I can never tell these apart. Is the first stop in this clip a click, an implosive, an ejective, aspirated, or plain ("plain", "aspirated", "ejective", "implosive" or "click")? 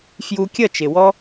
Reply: plain